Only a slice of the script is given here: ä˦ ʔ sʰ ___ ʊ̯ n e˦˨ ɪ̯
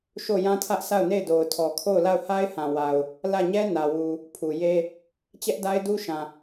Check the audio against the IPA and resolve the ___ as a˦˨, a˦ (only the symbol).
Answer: a˦˨